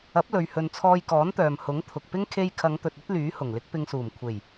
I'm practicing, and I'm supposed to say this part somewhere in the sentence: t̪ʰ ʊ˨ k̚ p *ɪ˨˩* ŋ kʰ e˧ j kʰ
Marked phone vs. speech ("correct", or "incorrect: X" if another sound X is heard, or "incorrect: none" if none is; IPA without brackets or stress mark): incorrect: ɪ˥